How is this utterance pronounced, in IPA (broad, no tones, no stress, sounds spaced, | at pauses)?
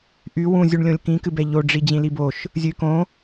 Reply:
ʔ y w ũ zʲ u ɳ lʲ õ lʲ k ĩ k ɨ b ɛ ʎ o ɖ͡ʐ i d͡ʑ ĩ l i b o ʃ | zʲ ɨ y̯ k õ